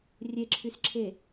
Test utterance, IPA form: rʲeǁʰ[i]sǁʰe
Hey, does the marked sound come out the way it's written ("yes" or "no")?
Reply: no